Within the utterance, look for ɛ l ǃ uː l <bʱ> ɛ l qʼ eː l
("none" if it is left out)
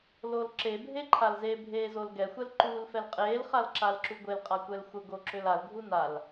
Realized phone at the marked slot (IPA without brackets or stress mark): f